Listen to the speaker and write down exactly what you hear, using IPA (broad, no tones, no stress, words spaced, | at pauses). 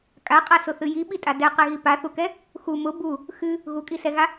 kʼaqʼasʊθɨ jiɓitʼa dɛqɛɣi paθukɛ | xu mʊ bu | xɨ | ɣukʼisɛɣa